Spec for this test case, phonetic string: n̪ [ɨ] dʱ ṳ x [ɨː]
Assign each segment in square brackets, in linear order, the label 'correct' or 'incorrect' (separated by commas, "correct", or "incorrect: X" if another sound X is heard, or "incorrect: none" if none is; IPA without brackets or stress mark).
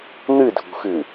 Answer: correct, correct